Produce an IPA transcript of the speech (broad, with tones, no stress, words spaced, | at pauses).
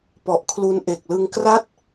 pɔ˨˩ʔkʰlu˧n ʔe˨˩k̚lɯ˧ŋkra˥˩t̚